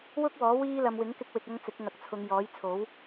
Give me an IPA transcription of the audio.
wʊ˥k̚wɔː˨˥ wiː˥lɐ˧m wɪ˨˥ŋkɪ˧k̚wɪ˨k̚ɐ˧ŋ t͡sɪ˨˥k̚ŋɐ˨k̚t͡sʰʊ˨˧ŋ jɔː˨˥jt͡sʰo˨˥w

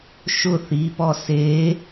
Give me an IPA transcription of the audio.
ʃʊ θipɔ se

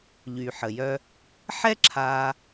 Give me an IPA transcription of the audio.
ʎy˩ ħə˩jœ˧ | ħɛ˥ǁʰaː˧

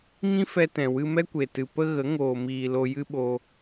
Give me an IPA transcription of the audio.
ŋĩ˦fɛ˧tɛ̃˨ wɨ˧mɛ˦kʷe˨tɨ˨ pə˧ ɣə˨˦ ŋoː˨miː˨ lo˧jɨ˦ ɓo˦

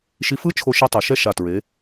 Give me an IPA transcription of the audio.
ʃi˧fɯ˥ t͡ʃʰo˧ʃi˧tˤɯ˩˧ ʃɛ˥˧ʃa˧˩ tɹe˩˧

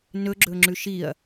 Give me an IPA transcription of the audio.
nɵɡ͡ǁɵŋ͡ǁʉ ʃiɐ̯

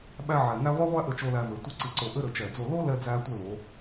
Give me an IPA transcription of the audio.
ɓæ˥ ʕɛ˧ŋæ˥ ʁʷɛ˥ʁʷæ˥ʔɘ˧t͡ʃo˧ læ˧vɘ˩˧ tʷɘ˥˧ǀi˧ǀo˧ʔɘ˥ ɾɘ˧t͡ʃɛ˧˩d͡zo˥˧ lo˥lɛ˧ d͡zæ˥tʷɘ˥˧ lo˩˧

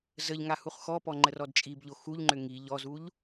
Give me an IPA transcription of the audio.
zəʎŋa huχxɔpɔ ŋ͡ǃərɔdt͡ʃʼibʎo xuʎŋ͡ǃʏ ŋi ʎɔzuʎ

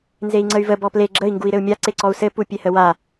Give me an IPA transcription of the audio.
nzei̯ŋ͡ǀəy̯və bɔple ɡ͡ǁəi̯ ŋɡui̯ɾɘu̯mʲa ǀeǀɔu̯sɘ pupʲehəwa

